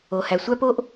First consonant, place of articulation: glottal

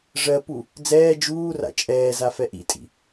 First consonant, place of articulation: retroflex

